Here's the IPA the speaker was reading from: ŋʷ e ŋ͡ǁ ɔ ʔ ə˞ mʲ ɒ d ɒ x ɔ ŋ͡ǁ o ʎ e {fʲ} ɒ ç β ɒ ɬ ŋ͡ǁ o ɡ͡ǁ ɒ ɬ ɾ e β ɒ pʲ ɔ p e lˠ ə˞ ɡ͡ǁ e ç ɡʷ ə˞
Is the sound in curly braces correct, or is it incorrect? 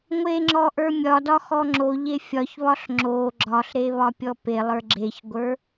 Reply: correct